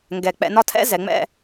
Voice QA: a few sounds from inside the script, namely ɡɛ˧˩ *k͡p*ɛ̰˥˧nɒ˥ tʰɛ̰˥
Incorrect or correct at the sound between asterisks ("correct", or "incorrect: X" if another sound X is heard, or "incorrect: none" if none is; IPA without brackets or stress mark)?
correct